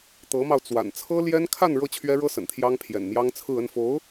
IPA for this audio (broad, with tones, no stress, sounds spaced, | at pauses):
t̪ ɤ˧˥ m ɑ˧ ʊ̯ t͡s w a̰˨˩ n t͡sʰ ɤ˥ l j ɛ˥ n kʰ a˥˧ n ɻ ɤ˥˩ t͡ɕʰ ɥ ɛ˥ ɻ ɤ˥ s ə̰˨˩ n t̪ʰ j ɑ˥ ŋ pʰ j ɛ̰˨˩ n m j ɑ˥ ŋ t͡sʰ ɹ̩˥˧ ə˥˩ n f o˧˥ ʊ̯